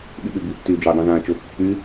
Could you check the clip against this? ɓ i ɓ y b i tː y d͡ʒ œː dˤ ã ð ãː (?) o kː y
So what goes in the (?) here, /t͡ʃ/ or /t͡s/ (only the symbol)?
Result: t͡ʃ